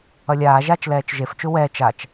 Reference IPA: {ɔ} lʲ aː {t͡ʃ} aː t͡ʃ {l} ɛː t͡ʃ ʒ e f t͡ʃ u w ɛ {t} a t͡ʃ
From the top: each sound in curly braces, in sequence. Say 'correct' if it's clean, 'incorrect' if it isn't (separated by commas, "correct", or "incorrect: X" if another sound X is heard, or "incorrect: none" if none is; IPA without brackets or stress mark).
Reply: incorrect: ʌ, incorrect: ʒ, correct, incorrect: t͡ʃ